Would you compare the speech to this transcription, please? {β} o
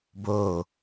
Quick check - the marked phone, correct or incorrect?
incorrect